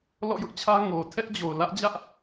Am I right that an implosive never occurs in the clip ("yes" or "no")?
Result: yes